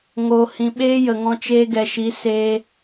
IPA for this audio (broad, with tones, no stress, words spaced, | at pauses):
ŋo˨hĩ˨ɓeː˦ jə˨ŋɔ̃˧t͡ʃeː˧ ɡɛ˨ʃi˨˦seː˧